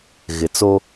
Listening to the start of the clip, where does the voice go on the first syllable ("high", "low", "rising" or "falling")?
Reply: low